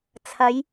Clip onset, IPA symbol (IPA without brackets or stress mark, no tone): t͡sʰ